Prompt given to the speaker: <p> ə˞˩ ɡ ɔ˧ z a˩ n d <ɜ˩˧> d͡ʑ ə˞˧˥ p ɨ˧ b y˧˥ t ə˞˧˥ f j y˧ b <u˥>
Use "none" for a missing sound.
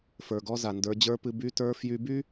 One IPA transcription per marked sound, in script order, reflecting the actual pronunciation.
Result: f, ə˞˩˧, y˥

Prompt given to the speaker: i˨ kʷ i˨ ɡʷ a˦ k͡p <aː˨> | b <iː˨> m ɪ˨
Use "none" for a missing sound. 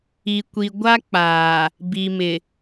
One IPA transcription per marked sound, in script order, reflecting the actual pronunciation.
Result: aː˨, i˨

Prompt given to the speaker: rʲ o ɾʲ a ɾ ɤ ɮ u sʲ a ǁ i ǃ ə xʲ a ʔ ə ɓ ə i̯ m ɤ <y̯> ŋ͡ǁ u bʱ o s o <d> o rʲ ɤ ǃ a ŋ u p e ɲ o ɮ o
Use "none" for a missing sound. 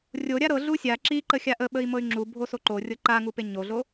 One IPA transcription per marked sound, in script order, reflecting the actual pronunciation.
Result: y̯, ǃ

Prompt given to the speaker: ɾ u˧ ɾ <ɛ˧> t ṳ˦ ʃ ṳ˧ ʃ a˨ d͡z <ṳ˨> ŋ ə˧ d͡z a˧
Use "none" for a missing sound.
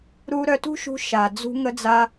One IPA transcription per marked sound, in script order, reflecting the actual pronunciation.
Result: œ˧, ṳ˧

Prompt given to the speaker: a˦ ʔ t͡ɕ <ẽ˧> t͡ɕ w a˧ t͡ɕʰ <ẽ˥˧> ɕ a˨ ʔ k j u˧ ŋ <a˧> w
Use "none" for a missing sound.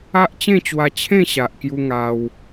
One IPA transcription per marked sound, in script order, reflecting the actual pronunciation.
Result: ẽ˥˧, ẽ˥˧, a˧

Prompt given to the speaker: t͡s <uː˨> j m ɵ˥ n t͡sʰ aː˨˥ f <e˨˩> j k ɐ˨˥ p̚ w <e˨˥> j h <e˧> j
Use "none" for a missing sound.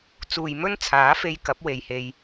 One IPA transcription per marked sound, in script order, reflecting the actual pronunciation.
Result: uː˨, e˧, e˨, e˧

